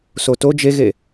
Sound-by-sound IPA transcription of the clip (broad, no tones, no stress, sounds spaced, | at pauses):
s o t o d͡ʒ e ɣ e